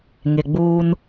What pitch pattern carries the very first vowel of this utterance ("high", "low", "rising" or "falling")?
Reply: low